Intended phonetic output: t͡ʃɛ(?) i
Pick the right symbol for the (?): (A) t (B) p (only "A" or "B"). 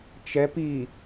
B